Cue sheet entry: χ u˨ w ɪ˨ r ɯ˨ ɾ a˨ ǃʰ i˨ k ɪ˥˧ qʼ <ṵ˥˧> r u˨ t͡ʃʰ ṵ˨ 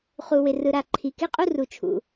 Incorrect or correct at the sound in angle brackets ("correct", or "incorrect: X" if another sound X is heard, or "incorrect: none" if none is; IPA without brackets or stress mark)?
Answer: incorrect: u˥˧